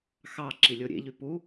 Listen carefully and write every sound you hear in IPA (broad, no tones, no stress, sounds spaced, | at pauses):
x ɑ ǁ i lʲ o ɾʲ ḛ ʎ y p u